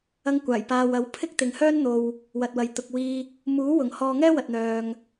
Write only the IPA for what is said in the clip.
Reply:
ɐ˧ŋkʷaː˨˩j paː˧w ɐ˨˥w pʰɪ˥k̚t̪ɪ˨ŋhœː˥n n̪o˧w | wɐ˨t̚wɐ˨˧j t̪ʊ˨k̚wiː˧ | muː˨˥wʊ˨˩ŋ hɔː˧ŋɛː˥wɐ˨t̚n̪œː˨ŋ

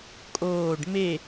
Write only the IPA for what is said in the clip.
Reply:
kʼoːɖ me

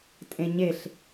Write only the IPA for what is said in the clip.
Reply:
tʼẽɲeɬ

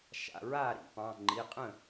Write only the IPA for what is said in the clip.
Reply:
ʃa̰˩˧˩ɹaː˥˩ɾḭ˨˦pɑ̃˩˧˩ ŋ͡ǃi˩˧˩qʼə̃˥˩

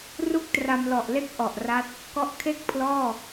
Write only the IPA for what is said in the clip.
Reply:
ru˥˩k̚tra˧mlɔ˨˩ʔle˥˩k̚ ʔɔ˨˩ʔra˦˥t̚ | kɔ˦˥ʔkʰe˥˩k̚pʰlɔː˥˩

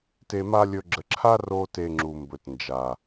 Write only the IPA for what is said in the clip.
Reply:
te˧ma˦lʲɵ˧ ɡ͡ǁə˨ǁʰa˦roː˧ te˧ŋ͡ǁu˨mbɵ˨t nd͡ʒa˨

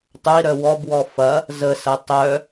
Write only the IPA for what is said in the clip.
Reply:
tˤʊi̯ɾœ wɔbwɔ fɐ | zəsɐ tˤœ

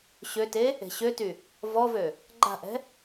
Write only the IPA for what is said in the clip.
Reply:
ɕøte | e̤ɕøty | vɔvø | ɡ͡ǃa̤ʔɛ̤

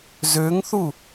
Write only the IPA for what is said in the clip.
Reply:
zøŋθu

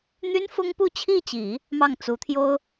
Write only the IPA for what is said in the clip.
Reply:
n̪y˥n fʊ˥ŋpu˥˧t͡ɕʰi˥˩t͡ɕi˨˩˦ | mɑ˥˩ŋt͡su˧˥ t̪ʰjo˥ʊ̯

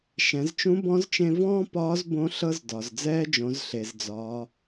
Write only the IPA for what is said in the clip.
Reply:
ʃɛ̃˩˧zt͡ʃũ˧˥bɔ̃˧˥zt͡ʃẽ˧ vɔ̃ː˥pɒː˧˥z bõ˧˥ ɬɤ˧zdɒ˩zd͡zɛː˧d͡ʒõ˩˧z ɬe˩zd͡zɒː˩˧

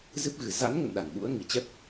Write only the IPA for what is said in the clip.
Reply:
zɨ˦˥p̚ɣɨ˨˩ za̰˧˥nŋə̰˧˨n ɗa˧˩nɓṵ˧˥ə̯ ŋi˧˩t͡ɕɛ˦˥p̚

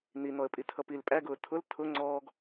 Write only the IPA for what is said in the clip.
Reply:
n̪in̪ɔə̯pʼitʰʌ pil pʼæɡʊː tʰʊl tʰʊ ŋ͡ǀɔːɡ

